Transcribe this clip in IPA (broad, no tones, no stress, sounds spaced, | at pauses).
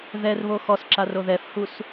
ð ɛ r β o x ɔ s ǁ a r o ð ɛ f h u s